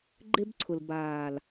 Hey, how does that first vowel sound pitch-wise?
high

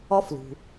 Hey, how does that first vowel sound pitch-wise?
high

